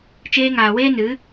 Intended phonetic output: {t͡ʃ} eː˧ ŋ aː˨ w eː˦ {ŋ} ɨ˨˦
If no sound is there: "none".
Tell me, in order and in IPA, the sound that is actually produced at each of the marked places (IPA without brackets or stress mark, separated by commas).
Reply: t͡ʃ, n